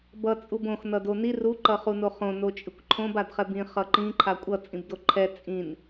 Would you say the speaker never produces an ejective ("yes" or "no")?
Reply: no